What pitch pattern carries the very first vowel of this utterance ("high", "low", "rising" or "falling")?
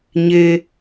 low